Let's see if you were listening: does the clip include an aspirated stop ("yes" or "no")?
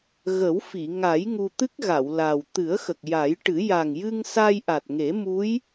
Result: no